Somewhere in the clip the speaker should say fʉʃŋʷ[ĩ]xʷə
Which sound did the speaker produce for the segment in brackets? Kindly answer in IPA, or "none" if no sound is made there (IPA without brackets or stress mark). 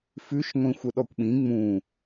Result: ĩ